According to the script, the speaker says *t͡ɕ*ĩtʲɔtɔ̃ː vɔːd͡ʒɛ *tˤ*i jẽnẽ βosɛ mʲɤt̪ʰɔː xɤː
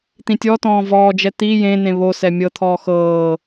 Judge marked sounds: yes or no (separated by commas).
no, no